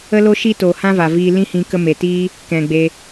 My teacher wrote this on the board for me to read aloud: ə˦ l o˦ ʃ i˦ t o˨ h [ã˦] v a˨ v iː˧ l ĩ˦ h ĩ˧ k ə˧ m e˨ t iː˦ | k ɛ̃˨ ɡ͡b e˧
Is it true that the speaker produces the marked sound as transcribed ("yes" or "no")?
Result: yes